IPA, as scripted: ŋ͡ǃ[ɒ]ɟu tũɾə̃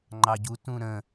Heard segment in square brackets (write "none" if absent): ɑ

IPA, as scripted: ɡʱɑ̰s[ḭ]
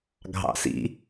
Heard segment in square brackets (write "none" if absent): ḭ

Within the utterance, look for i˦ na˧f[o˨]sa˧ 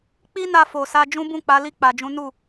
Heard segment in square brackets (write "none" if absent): o˨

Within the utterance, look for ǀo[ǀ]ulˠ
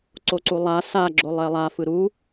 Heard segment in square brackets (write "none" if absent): ǀ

